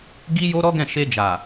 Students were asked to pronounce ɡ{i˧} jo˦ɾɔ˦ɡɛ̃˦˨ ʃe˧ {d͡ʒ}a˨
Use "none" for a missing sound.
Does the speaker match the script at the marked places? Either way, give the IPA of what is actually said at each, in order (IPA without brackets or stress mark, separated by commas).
i˦, d͡ʒ